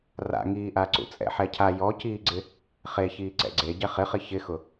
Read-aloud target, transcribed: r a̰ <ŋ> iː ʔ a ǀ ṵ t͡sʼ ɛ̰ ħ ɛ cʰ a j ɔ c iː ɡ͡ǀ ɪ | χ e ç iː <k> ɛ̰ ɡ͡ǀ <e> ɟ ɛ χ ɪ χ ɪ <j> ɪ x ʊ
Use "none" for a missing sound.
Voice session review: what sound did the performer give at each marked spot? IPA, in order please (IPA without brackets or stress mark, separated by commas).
ŋ, ǀ, e, ç